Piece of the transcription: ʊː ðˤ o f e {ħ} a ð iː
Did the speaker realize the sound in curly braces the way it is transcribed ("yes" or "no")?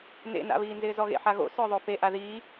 no